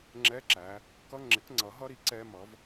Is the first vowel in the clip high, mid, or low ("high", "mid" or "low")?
mid